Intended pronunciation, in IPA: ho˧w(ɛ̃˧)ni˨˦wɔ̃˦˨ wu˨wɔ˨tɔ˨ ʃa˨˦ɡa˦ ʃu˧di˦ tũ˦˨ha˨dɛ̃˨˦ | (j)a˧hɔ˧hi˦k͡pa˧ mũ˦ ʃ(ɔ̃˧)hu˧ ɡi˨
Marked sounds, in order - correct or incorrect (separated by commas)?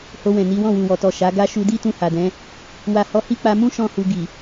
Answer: incorrect, incorrect, incorrect